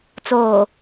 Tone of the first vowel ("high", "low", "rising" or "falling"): low